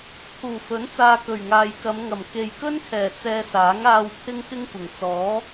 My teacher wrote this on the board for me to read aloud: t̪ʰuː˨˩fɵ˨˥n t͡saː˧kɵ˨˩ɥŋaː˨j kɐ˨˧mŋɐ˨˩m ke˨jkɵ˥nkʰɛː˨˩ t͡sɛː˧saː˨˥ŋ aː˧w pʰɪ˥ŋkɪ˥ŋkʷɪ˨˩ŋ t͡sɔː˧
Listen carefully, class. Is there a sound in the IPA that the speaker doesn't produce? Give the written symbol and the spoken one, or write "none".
ɔː˧ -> ɔː˨˥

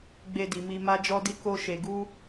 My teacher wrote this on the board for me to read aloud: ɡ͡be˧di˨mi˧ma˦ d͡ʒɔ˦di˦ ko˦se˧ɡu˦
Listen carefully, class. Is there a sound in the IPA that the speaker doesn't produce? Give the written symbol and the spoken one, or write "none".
s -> ʃ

